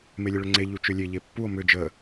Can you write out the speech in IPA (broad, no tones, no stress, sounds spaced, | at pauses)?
m e lʲ ə ɭ ʏ ŋ͡ǀ e ʎ u t͡ʃ ʏ lʲ e ʎ e pː u o̯ m ʏ d͡ʒ ə